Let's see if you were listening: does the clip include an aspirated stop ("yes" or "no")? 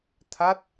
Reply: yes